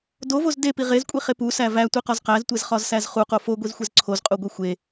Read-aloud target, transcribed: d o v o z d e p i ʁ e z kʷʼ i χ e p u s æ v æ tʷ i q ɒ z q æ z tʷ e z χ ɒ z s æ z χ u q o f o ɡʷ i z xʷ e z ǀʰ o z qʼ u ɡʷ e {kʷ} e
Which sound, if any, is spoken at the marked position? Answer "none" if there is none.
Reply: xʷ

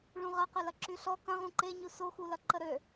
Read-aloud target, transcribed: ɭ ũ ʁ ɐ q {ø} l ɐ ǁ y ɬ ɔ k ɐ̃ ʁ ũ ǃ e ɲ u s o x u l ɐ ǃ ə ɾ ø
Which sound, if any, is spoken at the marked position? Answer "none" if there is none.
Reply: ø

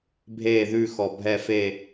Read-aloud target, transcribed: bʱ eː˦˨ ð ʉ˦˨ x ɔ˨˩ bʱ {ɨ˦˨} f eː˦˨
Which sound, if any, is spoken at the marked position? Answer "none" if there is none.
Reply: ɛ˦˨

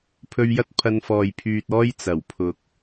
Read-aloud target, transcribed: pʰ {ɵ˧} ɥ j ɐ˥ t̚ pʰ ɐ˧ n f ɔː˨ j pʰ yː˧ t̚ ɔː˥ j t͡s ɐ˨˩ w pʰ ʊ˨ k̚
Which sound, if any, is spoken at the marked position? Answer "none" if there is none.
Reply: ɵ˧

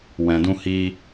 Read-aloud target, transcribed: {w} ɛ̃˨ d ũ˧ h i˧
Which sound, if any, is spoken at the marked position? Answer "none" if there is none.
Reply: w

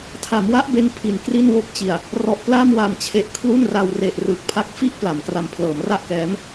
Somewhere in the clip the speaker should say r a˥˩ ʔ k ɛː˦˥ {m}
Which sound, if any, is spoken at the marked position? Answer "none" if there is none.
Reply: m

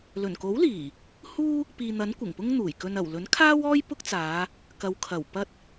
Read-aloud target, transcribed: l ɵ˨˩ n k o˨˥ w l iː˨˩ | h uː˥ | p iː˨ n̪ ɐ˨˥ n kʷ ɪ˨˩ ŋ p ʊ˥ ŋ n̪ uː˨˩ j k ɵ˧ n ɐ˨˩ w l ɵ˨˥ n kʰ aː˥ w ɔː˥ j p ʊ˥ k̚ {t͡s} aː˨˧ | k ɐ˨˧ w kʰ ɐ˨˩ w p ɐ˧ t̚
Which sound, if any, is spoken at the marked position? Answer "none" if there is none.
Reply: t͡s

